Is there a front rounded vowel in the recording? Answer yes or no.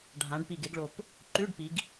no